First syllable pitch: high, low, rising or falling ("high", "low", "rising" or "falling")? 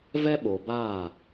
high